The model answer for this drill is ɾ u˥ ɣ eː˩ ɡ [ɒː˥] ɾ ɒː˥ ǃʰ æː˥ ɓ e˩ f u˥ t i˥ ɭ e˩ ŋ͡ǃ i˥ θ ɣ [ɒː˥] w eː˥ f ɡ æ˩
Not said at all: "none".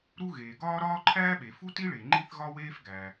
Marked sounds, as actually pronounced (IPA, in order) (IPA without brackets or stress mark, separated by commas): ɒː˥, ɒ˥